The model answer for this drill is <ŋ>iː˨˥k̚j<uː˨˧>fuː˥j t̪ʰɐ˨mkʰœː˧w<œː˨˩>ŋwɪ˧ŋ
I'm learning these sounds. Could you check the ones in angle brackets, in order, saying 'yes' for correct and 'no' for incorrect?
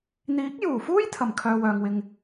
no, no, no

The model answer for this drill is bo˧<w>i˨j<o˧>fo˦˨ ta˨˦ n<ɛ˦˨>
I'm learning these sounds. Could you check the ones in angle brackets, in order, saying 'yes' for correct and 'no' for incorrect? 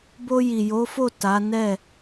no, no, yes

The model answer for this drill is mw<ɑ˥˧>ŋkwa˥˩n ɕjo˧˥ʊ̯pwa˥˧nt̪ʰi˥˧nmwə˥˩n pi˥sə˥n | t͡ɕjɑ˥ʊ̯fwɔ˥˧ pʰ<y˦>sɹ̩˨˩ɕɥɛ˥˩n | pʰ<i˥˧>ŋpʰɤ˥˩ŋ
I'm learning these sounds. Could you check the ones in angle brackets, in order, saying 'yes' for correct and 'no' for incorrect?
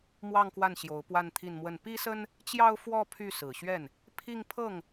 yes, no, yes

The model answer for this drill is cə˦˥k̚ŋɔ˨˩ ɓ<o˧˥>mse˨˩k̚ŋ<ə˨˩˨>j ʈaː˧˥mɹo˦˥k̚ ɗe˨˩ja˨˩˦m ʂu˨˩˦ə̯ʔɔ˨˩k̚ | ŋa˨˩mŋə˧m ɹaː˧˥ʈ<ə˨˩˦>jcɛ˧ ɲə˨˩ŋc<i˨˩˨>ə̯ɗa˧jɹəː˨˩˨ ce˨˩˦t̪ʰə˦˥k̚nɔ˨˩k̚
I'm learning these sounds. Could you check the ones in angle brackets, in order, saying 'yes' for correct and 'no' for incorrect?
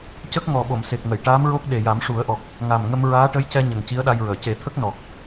no, yes, no, no

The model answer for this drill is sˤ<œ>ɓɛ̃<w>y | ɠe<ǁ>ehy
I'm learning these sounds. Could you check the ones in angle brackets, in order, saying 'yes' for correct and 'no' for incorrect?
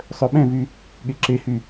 yes, no, yes

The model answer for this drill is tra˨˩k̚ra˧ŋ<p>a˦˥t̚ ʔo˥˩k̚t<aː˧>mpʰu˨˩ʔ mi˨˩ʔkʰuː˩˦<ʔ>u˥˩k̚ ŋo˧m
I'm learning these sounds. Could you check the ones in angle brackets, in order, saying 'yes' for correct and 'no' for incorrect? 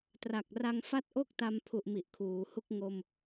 no, no, no

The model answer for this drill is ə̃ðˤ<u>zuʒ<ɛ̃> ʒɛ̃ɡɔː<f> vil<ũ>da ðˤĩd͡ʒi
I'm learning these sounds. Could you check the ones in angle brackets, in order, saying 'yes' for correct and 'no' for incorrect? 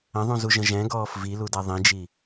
no, no, yes, no

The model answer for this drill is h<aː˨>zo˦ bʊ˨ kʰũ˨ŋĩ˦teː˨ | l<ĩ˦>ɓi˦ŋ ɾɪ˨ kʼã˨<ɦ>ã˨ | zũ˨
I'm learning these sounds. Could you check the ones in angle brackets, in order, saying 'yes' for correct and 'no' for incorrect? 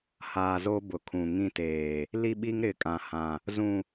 yes, no, no

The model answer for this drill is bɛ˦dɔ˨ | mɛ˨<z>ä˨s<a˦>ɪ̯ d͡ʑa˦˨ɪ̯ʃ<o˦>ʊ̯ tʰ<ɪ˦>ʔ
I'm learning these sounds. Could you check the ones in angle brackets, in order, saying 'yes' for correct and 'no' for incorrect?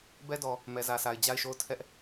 yes, no, no, no

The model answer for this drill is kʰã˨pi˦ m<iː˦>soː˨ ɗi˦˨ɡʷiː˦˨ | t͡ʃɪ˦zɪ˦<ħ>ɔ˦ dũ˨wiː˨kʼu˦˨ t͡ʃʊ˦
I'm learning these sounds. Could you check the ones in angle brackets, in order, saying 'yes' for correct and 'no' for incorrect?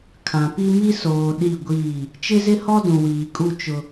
no, no

